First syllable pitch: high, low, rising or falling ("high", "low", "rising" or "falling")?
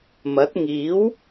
rising